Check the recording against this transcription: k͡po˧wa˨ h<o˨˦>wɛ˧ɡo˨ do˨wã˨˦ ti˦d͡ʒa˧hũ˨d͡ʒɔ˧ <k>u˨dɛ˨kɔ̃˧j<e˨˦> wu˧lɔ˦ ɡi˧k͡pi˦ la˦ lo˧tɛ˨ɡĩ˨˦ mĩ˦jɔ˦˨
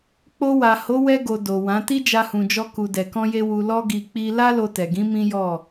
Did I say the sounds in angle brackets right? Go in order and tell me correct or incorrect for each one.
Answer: correct, correct, incorrect

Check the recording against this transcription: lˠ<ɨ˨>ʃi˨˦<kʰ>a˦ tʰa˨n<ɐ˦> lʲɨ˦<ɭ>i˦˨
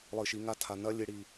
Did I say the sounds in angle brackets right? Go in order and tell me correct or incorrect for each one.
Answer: correct, incorrect, correct, incorrect

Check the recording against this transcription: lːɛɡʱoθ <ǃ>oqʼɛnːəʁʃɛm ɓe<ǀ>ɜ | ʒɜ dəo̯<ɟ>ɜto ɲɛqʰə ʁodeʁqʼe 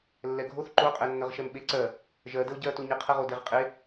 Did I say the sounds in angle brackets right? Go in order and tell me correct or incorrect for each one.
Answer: correct, correct, correct

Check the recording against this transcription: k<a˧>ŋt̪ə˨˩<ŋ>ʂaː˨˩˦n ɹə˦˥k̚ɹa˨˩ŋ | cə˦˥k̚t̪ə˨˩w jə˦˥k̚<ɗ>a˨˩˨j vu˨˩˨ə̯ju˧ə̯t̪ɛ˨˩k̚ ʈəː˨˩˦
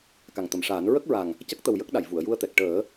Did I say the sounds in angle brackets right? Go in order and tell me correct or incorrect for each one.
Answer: incorrect, incorrect, correct

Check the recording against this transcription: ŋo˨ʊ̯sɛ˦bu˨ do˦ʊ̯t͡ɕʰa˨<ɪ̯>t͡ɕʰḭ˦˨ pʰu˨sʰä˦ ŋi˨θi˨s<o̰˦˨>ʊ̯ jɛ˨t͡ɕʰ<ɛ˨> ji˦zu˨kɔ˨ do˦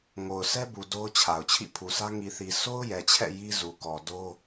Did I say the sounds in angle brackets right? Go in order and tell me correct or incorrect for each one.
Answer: incorrect, incorrect, incorrect

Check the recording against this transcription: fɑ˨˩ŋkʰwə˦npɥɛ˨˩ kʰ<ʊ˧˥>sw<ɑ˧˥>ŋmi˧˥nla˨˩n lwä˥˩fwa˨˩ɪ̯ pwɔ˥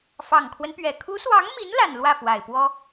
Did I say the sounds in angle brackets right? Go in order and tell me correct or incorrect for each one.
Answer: incorrect, correct

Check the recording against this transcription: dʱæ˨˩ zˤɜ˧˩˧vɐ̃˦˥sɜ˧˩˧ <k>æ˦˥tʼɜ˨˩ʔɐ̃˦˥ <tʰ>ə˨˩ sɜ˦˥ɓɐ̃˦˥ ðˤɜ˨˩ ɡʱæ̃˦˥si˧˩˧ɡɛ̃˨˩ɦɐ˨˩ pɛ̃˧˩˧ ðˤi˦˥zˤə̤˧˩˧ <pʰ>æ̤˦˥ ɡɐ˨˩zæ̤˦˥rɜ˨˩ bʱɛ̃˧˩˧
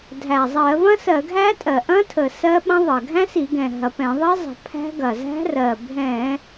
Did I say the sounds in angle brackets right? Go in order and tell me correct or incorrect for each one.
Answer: incorrect, correct, correct

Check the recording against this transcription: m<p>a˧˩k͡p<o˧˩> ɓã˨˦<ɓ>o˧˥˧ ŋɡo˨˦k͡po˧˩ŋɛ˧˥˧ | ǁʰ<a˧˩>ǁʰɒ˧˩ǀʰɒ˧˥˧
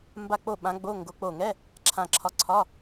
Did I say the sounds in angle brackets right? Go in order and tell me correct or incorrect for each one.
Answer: incorrect, correct, incorrect, incorrect

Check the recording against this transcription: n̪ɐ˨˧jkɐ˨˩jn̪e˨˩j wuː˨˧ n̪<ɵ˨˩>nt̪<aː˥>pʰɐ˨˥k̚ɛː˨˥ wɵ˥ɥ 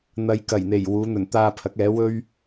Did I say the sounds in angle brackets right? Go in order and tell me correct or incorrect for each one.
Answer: correct, incorrect

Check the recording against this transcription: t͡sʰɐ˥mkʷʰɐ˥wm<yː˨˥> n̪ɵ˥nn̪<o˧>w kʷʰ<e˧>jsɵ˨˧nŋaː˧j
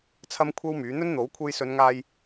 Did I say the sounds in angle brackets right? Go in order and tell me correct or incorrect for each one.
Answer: correct, incorrect, correct

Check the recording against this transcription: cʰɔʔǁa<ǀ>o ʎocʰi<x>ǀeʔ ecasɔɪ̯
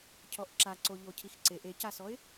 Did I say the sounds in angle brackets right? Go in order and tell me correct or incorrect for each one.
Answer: correct, correct

